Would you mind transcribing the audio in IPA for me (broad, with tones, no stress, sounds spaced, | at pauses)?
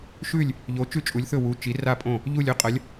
ʃ ʉ˧˩ lʲ | ʎ o˩˧ t͡ʃ ʉ˧˩ t͡ʃʼ u˩˧ lʲ θ ɵ˧˩ w u˩˧ t͡ʃ i˩˧ r a˧˩ pʼ õ˧˩ | ʎ u˧˩ lʲ ɵ˧˩ qʼ ɐ˩˧ lʲ